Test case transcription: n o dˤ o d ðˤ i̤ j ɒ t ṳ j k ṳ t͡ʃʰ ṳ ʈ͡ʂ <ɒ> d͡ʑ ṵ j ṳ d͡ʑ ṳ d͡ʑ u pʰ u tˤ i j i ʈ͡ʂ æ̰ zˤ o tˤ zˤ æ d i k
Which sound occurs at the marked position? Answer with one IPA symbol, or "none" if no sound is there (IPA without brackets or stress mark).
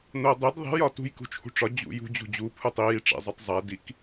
ɒ